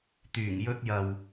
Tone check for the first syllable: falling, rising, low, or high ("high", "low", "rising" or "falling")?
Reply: low